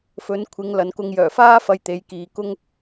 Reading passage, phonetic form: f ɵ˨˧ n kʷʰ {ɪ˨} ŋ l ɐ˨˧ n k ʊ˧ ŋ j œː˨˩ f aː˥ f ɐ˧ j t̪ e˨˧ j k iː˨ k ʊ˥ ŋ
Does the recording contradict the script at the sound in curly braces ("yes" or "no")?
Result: yes